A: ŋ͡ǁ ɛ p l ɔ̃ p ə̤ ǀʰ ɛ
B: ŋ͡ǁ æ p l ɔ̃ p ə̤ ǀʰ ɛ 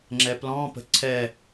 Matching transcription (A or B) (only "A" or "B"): A